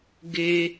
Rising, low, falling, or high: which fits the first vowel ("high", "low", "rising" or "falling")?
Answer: high